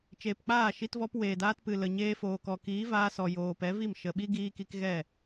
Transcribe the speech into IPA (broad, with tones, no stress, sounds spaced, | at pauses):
t͡ʃ eː˨ p k͡p aː˦˨ ʃ i˧ t v ɔ˧ p w eː˨ d aː˧ t p ɨ˨ l ə˨ ɲ eː˧ f oː˨ k ɔ˨ k iː˨˦ v aː˧ s ɔ˨ j oː˨ p ɛ˨˦ v i˦˨ m ʃ ə˨ ɓ i˦ ɡ iː˧ k i˧ k ɣ ɛ˦˨